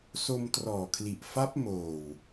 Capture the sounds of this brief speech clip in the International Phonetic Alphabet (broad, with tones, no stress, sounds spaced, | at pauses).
s o˧ m t r ɔː˨˩ kʰ l i˨˩ ʔ f a˦˥ p̚ m oː˨˩ w